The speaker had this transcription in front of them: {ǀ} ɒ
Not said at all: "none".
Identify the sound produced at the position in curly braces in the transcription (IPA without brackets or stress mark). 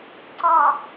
ǀ